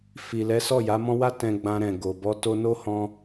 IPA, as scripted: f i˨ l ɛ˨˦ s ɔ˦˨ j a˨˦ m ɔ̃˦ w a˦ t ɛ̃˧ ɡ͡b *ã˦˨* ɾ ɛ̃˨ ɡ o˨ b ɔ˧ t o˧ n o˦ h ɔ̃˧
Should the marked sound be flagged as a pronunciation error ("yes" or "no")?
yes